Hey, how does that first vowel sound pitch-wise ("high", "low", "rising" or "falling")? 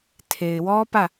low